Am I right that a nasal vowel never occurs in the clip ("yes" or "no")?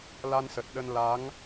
yes